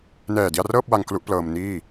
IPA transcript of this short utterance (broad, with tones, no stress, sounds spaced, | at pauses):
n ɛː˨˩ d i˧ a̯ r ɤː˥˩ p̚ w a˧ ŋ k l u˦˥ ʔ p l ɤː˧ m n iː˥˩